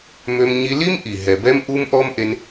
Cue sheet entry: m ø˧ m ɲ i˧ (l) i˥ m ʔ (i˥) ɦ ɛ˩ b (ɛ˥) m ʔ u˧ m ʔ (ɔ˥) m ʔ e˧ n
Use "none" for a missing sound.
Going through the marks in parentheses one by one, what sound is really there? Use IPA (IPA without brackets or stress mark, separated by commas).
l, i˩, ɛ˧, ɔ˥